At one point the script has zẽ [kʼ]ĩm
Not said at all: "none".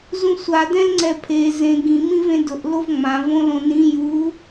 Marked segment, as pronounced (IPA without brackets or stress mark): ɡ